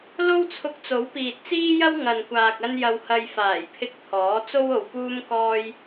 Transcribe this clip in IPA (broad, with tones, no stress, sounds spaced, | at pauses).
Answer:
l o˥ w t͡sʰ ʊ˧ k̚ t͡s o˨˥ w p iː˨ t̚ t͡s iː˥ j ɐ˥ w ŋ ɐ˨ n kʷ aː˨ k̚ ɐ˧ n j ɐ˨ w h ɐ˨ j f aː˨˩ j pʰ ɪ˧ k̚ t̪ʰ ɔː˨˥ t͡s o˥ w o˨ w p uː˥ m k ɔː˥ j